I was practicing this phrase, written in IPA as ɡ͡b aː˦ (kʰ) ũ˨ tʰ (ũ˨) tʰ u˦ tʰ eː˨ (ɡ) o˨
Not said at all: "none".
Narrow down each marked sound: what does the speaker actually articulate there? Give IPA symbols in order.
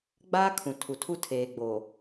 kʰ, u˨, ɡ͡b

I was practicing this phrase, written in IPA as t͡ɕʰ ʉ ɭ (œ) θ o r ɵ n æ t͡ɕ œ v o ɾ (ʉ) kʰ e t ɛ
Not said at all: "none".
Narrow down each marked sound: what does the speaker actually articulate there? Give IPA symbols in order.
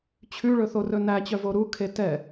ɵ, u

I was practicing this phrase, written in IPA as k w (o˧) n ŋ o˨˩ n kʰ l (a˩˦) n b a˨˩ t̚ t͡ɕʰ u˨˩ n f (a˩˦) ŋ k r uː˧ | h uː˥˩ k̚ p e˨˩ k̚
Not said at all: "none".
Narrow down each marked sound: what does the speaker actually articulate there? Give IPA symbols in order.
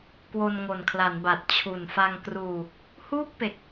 o˧, a˩˦, a˧

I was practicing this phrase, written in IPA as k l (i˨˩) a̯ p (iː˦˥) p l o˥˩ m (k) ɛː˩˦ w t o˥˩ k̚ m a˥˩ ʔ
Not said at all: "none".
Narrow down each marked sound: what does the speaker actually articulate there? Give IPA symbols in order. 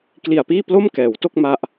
i˨˩, iː˥˩, k

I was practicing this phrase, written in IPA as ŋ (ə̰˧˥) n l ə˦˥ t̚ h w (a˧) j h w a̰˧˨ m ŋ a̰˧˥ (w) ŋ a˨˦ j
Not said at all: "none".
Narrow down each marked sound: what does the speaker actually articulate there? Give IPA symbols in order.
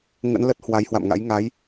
ə̰˧˥, a˨˦, j

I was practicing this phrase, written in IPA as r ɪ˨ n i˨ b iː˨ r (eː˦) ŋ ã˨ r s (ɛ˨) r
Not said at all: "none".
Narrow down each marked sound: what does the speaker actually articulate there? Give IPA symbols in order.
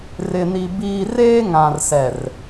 eː˦, ɛ˨

